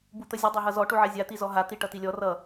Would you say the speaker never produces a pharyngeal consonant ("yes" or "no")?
no